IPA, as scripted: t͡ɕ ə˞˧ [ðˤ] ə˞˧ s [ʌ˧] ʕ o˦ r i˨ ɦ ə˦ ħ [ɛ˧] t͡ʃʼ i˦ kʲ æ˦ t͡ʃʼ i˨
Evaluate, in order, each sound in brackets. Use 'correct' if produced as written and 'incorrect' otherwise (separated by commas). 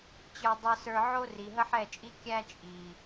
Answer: incorrect, incorrect, incorrect